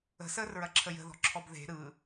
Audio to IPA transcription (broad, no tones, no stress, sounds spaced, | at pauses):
ə̤ s əː r ɹ ɐ ǁʰ ə j ə̤ ð ɔ̤ ǁʰ ɔ b ð e̤ ɾ ɯ